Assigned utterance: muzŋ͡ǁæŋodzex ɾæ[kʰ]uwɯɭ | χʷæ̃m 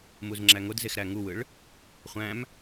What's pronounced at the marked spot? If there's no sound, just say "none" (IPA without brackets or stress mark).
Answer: ŋ